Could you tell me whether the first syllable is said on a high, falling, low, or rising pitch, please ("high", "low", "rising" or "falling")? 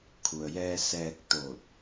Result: low